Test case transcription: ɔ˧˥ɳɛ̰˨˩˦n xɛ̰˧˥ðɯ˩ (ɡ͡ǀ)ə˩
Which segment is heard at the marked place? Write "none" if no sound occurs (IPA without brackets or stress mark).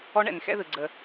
ɡ͡ǀ